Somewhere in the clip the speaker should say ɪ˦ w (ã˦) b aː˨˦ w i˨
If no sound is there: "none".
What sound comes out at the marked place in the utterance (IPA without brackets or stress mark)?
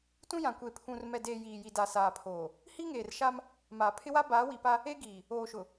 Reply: a˦